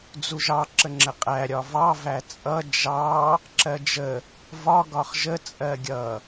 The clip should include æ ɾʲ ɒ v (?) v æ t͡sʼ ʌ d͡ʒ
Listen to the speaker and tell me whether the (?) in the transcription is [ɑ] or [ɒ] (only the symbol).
ɑ